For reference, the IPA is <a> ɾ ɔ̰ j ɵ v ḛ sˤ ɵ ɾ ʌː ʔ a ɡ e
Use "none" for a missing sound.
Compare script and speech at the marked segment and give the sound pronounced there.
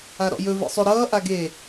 a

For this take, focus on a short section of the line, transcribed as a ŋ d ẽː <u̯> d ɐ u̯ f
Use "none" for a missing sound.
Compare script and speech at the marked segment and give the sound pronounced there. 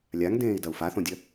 i̯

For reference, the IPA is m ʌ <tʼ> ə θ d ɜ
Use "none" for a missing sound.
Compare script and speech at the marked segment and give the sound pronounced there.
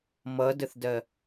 d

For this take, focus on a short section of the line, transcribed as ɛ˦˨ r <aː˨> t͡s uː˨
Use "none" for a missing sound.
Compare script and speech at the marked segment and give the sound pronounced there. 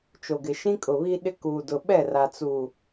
a˨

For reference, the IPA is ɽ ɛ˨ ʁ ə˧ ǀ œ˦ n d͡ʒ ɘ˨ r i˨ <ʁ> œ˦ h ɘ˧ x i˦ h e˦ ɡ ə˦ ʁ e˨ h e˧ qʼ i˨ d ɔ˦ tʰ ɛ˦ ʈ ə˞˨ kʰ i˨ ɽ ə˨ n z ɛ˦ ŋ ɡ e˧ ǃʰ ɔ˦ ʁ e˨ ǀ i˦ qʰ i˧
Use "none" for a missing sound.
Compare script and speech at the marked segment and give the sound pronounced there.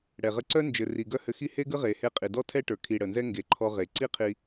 ɡ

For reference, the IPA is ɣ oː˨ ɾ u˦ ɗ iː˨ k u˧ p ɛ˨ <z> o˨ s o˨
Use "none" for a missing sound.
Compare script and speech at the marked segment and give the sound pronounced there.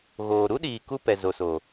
z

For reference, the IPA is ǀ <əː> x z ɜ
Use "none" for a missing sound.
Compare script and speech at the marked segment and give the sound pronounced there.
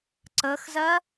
əː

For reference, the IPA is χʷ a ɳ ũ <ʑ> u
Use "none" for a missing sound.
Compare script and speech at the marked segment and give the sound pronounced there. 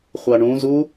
z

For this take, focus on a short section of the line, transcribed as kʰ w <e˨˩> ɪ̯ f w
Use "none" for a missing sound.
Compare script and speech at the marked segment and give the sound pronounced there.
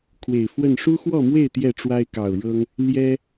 e˨˩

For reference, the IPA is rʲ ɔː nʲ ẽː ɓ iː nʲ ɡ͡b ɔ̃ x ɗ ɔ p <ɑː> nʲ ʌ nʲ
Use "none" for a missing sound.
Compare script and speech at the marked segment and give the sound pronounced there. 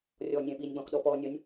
ɔː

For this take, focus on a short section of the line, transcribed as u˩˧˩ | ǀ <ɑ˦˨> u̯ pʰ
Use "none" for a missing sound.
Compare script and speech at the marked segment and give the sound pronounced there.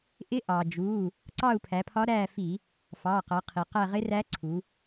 ɑ˦˨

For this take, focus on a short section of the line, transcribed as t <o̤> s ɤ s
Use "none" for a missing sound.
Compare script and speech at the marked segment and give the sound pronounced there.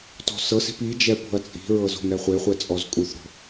ɔ̤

